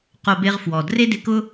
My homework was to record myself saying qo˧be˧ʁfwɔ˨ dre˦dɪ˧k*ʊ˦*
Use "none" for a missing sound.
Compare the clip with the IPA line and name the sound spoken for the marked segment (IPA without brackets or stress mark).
ʊ˦